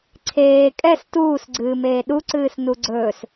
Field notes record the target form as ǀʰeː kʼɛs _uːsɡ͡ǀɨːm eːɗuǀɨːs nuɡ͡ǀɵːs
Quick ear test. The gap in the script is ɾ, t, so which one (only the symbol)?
t